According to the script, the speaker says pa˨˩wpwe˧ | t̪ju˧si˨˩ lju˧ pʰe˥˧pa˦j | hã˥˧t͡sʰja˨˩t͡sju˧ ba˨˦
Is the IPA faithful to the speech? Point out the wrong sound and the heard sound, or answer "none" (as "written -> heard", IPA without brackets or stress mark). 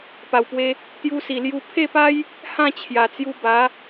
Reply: t͡sʰ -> t͡ɕʰ